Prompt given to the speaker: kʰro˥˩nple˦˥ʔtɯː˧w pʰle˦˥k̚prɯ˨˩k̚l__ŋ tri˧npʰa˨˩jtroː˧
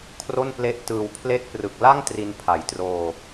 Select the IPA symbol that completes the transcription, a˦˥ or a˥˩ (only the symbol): a˥˩